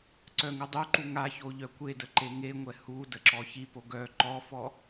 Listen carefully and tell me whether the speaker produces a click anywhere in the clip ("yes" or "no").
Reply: yes